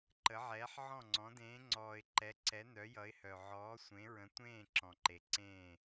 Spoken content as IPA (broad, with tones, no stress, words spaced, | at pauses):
ǃə˨˦ʕɛː˨˦ħʕɔ̃˦˨ŋ͡ǀɔ̃˨˦ dẽː˨˦ŋ͡ǀɔː˨ɪ̯ ǃɛ˨˦ ǀɛ˨˦nœ˨˦jʌ˨˦ɪ̯hœ˨ ʕɔː˨˦ sʷẽ˨˦ɹə̃˨˦tʷẽː˦˨ ǁɔ̃˨ǃe˨ ǀẽː˦˨